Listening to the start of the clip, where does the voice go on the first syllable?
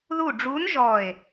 falling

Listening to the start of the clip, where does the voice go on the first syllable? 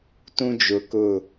high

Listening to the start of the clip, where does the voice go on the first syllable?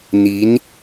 rising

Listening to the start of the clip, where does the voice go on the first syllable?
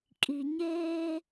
low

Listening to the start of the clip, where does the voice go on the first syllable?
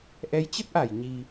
rising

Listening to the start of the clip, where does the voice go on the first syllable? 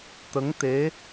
rising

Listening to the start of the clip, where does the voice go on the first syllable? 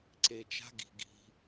low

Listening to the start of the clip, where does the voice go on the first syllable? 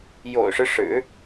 low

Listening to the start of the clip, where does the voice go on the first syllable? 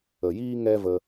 low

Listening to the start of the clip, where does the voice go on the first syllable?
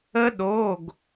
high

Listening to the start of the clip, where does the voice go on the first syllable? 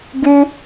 high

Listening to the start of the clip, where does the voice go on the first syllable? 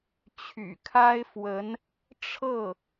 low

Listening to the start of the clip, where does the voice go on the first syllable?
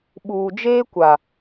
low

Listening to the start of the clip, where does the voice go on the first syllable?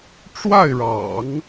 falling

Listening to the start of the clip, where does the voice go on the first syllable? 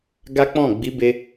high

